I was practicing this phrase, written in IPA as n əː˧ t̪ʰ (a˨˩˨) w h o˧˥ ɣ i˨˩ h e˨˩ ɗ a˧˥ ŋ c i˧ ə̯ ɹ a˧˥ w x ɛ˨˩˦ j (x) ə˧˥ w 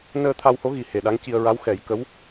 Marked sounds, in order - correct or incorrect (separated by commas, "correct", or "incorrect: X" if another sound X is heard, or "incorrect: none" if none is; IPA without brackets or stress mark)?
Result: incorrect: a˧, incorrect: k